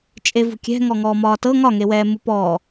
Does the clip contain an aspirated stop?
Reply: no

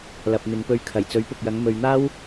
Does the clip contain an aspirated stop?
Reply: yes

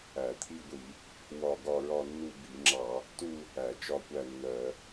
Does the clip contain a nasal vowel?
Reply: no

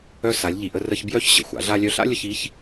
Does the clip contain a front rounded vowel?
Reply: yes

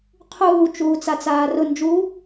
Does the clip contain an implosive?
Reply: no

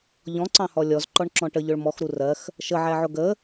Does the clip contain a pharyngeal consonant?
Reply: yes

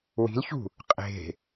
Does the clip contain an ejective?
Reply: yes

